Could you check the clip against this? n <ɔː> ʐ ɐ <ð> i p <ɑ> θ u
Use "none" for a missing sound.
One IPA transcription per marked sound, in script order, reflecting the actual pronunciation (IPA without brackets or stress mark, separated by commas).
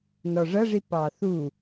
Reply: ɔ, ʐ, ɑ